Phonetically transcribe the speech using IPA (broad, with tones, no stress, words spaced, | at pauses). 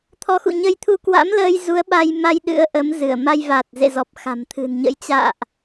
t̪ʰɔ˨˦xṵ˧˨ɲə˧jt̪ʰu˧ kwa̰˧˥mləː˧j zu˨˦ə̯ɓa˧jma˧j ɗɨ̰˧˥ə̯ʔə˨˦mzɨ˧˩ə̯ ma˧jva˨˩t̚zḛ˧˨zɔ˨˩p̚ xa̤˨˩mt̪ʰɨ̤˨˩nɲə̰˧˥j t͡ɕa̰ː˧˨ʔ